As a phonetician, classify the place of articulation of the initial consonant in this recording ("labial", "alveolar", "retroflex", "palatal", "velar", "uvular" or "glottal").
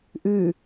glottal